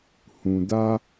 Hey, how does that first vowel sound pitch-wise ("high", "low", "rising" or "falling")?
low